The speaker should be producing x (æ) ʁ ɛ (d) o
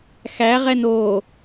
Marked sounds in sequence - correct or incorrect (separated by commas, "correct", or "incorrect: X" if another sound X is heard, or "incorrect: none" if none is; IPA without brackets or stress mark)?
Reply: correct, incorrect: n